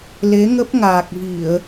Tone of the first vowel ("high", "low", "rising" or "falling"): rising